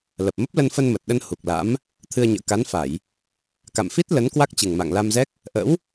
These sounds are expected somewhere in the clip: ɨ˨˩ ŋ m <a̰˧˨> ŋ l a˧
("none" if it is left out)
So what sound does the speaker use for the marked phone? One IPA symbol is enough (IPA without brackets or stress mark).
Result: a̰˧˨